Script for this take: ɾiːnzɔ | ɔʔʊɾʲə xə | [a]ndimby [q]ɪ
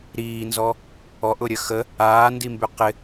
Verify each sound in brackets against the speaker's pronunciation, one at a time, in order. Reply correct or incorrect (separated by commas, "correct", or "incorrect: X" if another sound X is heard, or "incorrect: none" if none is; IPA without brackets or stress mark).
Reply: incorrect: aː, correct